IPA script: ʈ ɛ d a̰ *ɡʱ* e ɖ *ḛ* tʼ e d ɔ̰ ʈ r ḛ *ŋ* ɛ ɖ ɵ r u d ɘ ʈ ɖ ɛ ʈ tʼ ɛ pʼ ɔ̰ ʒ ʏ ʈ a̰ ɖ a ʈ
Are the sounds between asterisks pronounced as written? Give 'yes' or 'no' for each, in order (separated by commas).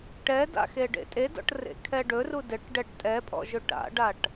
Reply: no, yes, no